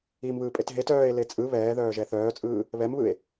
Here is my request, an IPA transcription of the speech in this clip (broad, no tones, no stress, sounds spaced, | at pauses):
i m β ɯː pʼ e t ɦ e t œː e̯ l e t͡sʼ ɯ β ɛː ð œː ʒ ɛ θ œː t͡sʼ ɯː | β ɛ m β ɯ e̯